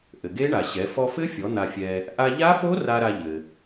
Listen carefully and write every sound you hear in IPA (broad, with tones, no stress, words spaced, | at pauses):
ʔɘ˩ɡe˦˥ɳa˩ɕɛ˩˧ fɔ˧fɘ˦˥fʲɔ˩˧ n̪a˧fʲɛ˧ | ʔa˧ʎa˦˥fo˦˥ ra˧ ɾa˧ʎɘ˩